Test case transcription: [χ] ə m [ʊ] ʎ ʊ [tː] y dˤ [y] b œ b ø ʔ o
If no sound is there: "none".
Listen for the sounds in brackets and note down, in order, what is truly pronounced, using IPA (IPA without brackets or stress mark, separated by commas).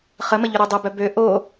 χ, ə, ɾ, ø